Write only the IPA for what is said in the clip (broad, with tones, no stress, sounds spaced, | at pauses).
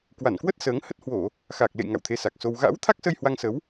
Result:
k w a˧˩ n k w ə˦˥ t̚ s əː˨˦ ŋ h ə˦˥ t̚ h w o˧˩˨ | x aː˨˩ k̚ l ḛ˧˨ j ŋ a̰˧˨ w t̪ʰ e˧ s a˨˩ k̚ s o˧ w ɣ a̰ː˧˥ w t̪ʰ a˦˥ k̚ s ə˧ j h w a˧ ŋ s ə˨˦ w